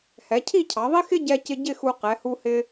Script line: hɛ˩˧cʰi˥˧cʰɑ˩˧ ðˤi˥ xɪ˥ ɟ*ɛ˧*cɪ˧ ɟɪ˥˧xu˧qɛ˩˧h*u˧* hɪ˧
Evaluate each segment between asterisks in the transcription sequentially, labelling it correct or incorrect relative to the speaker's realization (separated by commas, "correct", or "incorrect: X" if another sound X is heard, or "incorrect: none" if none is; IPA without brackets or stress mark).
correct, correct